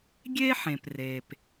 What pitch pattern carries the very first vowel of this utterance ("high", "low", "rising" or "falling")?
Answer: high